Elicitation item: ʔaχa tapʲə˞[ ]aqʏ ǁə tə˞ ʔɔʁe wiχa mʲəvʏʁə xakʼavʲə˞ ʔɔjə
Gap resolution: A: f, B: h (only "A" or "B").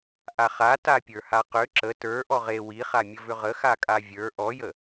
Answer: B